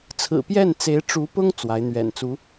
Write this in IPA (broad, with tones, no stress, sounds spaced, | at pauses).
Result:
t͡sʰ ɹ̩˨˩ p j ɛ˥˩ n t͡s e˧˥ ɪ̯ ʈ͡ʂ u˧˥ p ʊ˥ ŋ t͡s w a˧˥ ɪ̯ n̪ ɥ ɛ̰˨˩ n t͡s u˧˥